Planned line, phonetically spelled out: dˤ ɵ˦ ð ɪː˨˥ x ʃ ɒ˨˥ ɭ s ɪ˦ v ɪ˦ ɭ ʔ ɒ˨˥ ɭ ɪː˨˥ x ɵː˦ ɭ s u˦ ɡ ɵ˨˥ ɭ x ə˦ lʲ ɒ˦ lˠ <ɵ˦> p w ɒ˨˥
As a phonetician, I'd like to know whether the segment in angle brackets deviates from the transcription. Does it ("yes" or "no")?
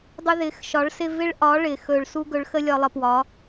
yes